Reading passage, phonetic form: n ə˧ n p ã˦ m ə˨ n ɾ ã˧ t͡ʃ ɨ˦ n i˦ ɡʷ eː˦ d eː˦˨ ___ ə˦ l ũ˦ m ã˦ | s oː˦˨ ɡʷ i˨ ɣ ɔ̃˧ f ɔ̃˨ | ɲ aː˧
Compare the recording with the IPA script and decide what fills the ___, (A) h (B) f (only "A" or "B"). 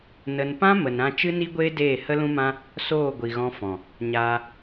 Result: A